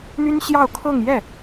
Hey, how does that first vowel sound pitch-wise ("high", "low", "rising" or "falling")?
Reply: high